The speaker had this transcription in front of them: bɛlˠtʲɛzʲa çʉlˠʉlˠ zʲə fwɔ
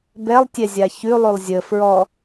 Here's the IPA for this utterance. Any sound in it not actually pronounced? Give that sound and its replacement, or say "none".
w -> ɹ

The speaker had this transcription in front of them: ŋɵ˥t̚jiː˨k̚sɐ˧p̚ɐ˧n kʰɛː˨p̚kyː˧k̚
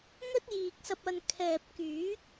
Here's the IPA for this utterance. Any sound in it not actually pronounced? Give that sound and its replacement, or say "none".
yː˧ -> yː˨˥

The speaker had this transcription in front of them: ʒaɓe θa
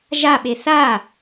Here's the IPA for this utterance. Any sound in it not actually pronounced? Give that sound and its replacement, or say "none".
none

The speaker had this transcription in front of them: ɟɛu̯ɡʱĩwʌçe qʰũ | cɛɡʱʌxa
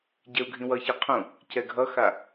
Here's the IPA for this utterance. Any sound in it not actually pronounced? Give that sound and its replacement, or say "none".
none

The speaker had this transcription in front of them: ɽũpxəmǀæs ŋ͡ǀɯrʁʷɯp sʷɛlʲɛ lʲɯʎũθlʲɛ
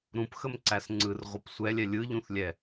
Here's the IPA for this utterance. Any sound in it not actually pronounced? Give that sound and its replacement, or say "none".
ɽ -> ɾ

